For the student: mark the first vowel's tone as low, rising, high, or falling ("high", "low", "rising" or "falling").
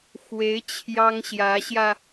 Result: rising